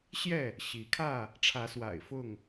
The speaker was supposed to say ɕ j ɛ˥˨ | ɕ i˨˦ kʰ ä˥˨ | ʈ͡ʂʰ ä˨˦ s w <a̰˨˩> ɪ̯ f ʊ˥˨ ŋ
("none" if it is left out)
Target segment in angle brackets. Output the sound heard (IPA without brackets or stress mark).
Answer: a̰˨˩